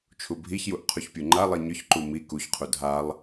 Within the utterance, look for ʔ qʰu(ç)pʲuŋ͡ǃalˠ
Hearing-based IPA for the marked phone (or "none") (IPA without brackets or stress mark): ç